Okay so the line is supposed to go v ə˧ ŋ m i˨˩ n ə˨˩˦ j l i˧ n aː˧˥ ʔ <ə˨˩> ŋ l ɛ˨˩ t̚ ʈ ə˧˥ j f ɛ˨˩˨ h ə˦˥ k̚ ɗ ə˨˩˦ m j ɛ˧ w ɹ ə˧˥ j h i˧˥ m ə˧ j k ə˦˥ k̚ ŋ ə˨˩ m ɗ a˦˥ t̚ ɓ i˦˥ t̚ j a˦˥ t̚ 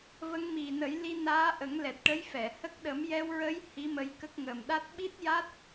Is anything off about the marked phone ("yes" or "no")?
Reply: yes